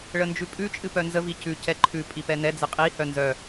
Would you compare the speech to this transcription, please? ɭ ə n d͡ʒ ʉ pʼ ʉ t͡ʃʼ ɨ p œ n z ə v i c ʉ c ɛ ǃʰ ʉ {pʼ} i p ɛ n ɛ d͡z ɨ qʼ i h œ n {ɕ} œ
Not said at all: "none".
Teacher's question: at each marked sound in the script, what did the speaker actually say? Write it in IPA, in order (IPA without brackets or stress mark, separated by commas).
pʼ, z